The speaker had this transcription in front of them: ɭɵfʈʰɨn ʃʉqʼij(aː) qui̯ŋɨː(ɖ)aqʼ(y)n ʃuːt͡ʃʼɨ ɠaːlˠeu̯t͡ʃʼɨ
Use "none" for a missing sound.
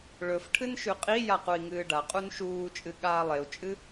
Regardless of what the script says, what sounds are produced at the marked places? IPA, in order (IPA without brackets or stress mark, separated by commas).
a, ɖ, u